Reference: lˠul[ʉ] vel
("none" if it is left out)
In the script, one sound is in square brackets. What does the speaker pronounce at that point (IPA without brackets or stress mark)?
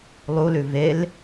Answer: ʉ